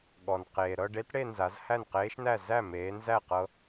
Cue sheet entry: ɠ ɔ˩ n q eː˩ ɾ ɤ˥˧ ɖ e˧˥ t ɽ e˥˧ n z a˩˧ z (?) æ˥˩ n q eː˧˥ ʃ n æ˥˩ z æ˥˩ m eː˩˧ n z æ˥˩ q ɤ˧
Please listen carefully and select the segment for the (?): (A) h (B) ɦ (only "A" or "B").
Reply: A